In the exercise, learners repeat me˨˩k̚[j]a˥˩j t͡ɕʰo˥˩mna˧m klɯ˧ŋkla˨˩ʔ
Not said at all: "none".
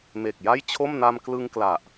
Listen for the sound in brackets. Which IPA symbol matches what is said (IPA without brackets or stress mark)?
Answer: j